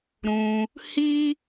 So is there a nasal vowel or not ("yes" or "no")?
yes